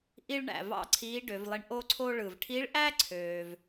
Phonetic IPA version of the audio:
ʔ i˥ ɭ ɳ æ̰˩ v ɑ̰˥ ǀʰ iː˧˥ ɖ ø˩˧ v lˠ i˧ ɳ ʔ o˥ ǀʰ o˥ ɭ ɯ˩ v ʈʰ i˧˥ ɭ ʔ æ˥ ǀʰ øː˩ v

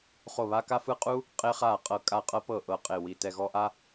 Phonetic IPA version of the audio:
χ o˦˨ β a˦ k a˦ f ɯ˦ qʼ u˦ | qʼ e˦ χ a˦˨ qʼ ɤ˦˨ kʼ a˦˨ qʼ ɤ˦ p ɤ˦˨ ʔ ɤ˦˨ qʼ e˦˨ w i˦˨ t ɛ˦˨ ɣ ɔ˦ ʔ a˦

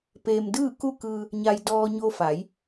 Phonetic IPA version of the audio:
p eː˧ m d ɯː˥˨ k u˥˨ k ɯː˧ | ɲ a˧ j d ɔː˧ ɲ o˧ f a˩˧ j

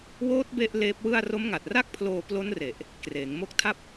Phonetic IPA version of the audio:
w oː˦˥ t̚ b e˥˩ ʔ l eː˦˥ p̚ w ɯ˥˩ a̯ r o˦˥ m ŋ a˨˩ t̚ r a˥˩ k̚ pʰ l oː˧ p l o˦˥ n r e˨˩ ʔ | k r eː˩˦ ŋ m o˦˥ k̚ tʰ a˥˩ p̚

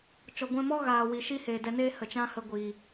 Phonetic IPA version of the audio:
t͡ʃ ɔ˨ ɡʷ ɛ̃˧ m ɔ˦ ɣ aː˨ w i˨ ʃ i˦ h eː˨ d ɛ˧ n eː˦ h ə˨ t͡ʃ ã˦ h ə˧ ɡʷ iː˨

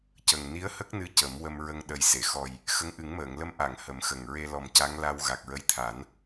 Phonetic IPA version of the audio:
c ə˨˩ ŋ n i˧˥ ə̯ h ə˦˥ k̚ n ɨ˧˥ c ə˨˩˦ m w ə˧ m ɹ ə˧ ŋ ɗ ə˨˩ j s e˨˩˨ x ɔ˨˩ j | x ə˧˥ ŋ ʔ ɨ˨˩˦ ŋ m əː˨˩˨ ŋ l ə˧ m ʔ a˨˩˨ ŋ h ə˨˩˦ m x ə˨˩ ŋ ɹ e˧ l ɔ˨˩ m c a˧˥ ŋ l a˧ w ɣ a˨˩ k̚ ɹ ə˧˥ j t̪ʰ a˨˩˦ n

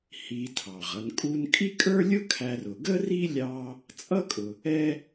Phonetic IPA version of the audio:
h i˨ tʰ ɑ˩ ʁ ʌ˨ n kʼ u˦ n kʼ i˥ kʼ ə˞˥ lʲ ʊ˥ kʰ æ˨ r ʊ˩ ɡ ə˥ r i˥ lʲ ɑ˦ | t͡sʼ ʌ˥ kʼ ʊ˨ | ɛ˥

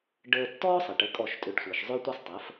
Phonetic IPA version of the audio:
ɖ əː˧ tː ɔ˥ sˤ ɘ˩ ʈ ə˩˥ kʼ ɔ˥˩ ʃ tʼ ʏ˧ ɖ sʷ ɘː˩ ʃ zˤ ʏ˥ tʷ ɛ˥ sˤ tˤ əː˩˥ f

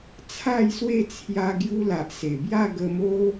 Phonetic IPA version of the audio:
t͡sʰ a˥˧ j s w e˥˧ t͡sʰ j a˧ ɡ j u˧ l a˨ ʔ s e˨˩ b j a˥˧ ɡ ə˧ m o˦

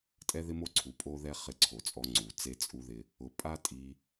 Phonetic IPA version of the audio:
tʼ ɛ˦ ð ɪ˦ m o˦ ǀʰ u˨ pʼ o˦ ð ɛ˦ χ ɪ˧ ǀʰ o˨ t͡sʼ ɔ˧ ŋ͡ǀ u˨ t͡s e˦ t͡sʼ u˦ ð ɪ˦ | ʊ˨ pʼ a˦ tʼ i˧

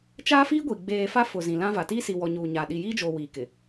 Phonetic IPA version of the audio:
t͡ʃ aː˦ f iː˦ ɡʷ i˨ ɡ͡b eː˨ f a˦ f ʊ˨ z ĩ˨ l ã˦ v a˨ t iː˦ s i˨ w ɔ˨ ɲ uː˨ ɲ aː˨ ɗ i˨ j iː˦ d͡ʒ oː˨ w iː˨ k ɪ˨

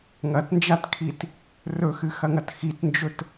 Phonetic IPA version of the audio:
ŋ ɐ t n d͡ʒ a t kʰ i t | r ɵ x ɨ x ɐ ŋ ɐ t x i t n d͡ʒ ɵ t

